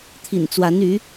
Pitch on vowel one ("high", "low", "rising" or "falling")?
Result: low